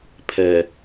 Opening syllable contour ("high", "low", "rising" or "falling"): low